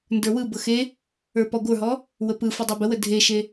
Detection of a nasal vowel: absent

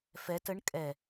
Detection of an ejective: present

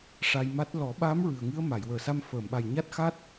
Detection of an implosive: present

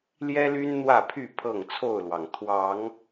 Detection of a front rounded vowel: present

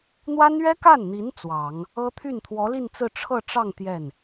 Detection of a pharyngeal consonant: absent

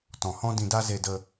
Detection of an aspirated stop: absent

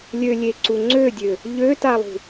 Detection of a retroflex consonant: absent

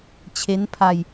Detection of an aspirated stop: present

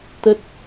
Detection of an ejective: absent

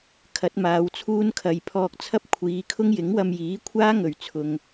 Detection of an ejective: absent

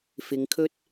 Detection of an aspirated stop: present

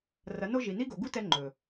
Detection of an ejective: absent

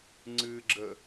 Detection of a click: present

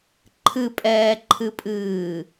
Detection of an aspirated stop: present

